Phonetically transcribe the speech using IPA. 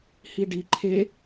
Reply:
h i ɖ i ǃʰ e

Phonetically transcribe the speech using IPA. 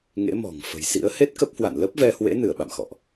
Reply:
ŋ ḛ˧˥ m ɔ̤˨˩ ŋ f ə̤˨˩ j s ḭ˧˥ ə̯ h e˦˥ t̚ k ə˦˥ p̚ h w a̰˧˨ n l ə˦˥ p̚ v ɛ˧ h w ḛ˧˥ n ɨ˧˩ ə̯ ɓ a̰˧˨ m x ɔ̰˧˨ ʔ

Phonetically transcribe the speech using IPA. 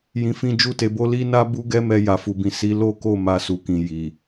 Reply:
j ĩ˨ f ĩ˧ d͡ʒ u˧ t e˨ b o˧ l i˦ n a˦ b u˦ ɡ ɛ˦ m ɛ˧ j a˨ f u˨ b ĩ˨ s i˨˦ l o˦ k o˦˨ m a˧ s u˨ k ĩ˨ j i˨

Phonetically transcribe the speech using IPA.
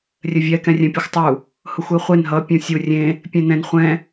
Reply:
rʲ ɘ vʲ ɛ k ɛ̃ rʲ ɛ̃ pʲ u xʷ tˤ u | h ʊ xʷ e χʷ e n ɦ ʌ pʲ ũ sʲ u rʲ ẽ | pʲ ẽ n ɛ̃ n χʷ ɛ̃

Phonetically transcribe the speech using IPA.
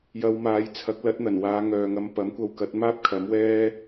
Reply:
j ɐ˧ w m aː˨˧ j t͡sʰ ɐ˨˥ k̚ l ɐ˨˥ t̚ n̪ ɐ˨˩ n w aː˨˧ ŋ œː˨ ŋ ɐ˧ m p ɐ˨˥ m kʷ ɐ˧ w k ɐ˨˥ t̚ m aː˥ p̚ kʰ ɐ˨˥ m w ɛː˥

